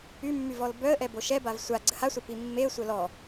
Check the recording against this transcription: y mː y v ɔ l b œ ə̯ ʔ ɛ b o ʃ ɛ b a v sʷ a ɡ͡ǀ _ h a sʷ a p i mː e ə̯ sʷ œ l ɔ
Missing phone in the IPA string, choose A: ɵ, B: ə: B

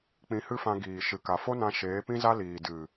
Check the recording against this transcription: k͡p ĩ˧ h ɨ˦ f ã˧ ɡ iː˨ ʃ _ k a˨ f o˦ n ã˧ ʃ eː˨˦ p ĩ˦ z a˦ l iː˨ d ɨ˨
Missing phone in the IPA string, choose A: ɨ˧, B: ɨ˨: B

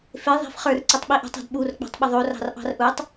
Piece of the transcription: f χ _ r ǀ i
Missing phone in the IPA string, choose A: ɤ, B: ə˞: B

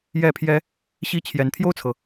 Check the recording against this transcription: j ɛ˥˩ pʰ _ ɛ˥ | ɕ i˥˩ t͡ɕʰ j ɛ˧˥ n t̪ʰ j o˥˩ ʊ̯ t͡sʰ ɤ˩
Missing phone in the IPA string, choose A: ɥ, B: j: B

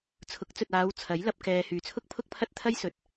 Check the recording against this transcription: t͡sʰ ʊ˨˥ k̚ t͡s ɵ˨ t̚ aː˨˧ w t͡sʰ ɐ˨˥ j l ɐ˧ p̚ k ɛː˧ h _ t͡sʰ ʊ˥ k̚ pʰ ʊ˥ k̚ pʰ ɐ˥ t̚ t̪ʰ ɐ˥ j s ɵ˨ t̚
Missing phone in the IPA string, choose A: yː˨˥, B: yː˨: B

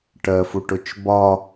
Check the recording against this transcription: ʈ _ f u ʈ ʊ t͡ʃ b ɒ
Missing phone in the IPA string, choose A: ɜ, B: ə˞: A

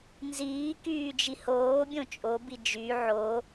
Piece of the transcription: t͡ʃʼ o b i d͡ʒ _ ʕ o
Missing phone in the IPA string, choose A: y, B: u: A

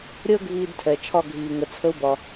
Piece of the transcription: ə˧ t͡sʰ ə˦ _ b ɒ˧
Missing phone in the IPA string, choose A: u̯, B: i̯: A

